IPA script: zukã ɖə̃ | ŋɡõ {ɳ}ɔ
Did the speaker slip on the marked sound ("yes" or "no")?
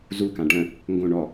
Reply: no